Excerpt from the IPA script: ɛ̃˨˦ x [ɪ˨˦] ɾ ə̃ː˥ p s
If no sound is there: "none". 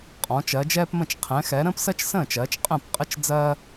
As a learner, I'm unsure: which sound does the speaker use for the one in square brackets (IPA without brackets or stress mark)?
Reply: ɛ˨˦